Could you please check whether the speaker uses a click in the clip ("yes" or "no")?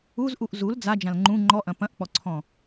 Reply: yes